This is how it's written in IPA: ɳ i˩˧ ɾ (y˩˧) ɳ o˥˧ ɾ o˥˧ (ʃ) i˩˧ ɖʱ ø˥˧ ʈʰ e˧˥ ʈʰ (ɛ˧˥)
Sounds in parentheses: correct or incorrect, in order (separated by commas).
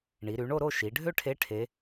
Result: correct, correct, incorrect